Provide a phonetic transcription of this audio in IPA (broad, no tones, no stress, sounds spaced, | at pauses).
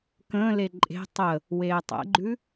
k ə̃ː l e ǃʼ e̤ tˤ ə | w eː tˤ ɛ̰ ɡ͡ǃ ʉ